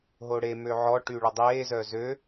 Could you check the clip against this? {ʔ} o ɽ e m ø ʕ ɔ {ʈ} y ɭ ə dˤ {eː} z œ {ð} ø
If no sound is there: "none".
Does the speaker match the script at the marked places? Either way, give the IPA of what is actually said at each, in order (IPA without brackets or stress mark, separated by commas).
ɦ, ʈ, eː, z